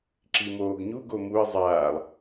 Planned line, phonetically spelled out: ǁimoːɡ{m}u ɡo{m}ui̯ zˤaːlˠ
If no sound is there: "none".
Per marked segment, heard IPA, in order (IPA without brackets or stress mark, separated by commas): ɲ, m